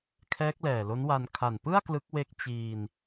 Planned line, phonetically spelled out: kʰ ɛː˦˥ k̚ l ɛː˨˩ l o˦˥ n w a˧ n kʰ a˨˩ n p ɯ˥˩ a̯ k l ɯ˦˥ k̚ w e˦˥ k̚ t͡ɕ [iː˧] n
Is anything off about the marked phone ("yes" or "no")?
no